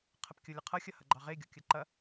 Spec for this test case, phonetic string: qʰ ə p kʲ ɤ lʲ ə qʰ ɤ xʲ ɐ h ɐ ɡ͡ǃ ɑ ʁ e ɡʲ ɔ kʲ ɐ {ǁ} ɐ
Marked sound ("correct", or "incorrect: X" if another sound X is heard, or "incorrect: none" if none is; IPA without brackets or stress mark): incorrect: ǃ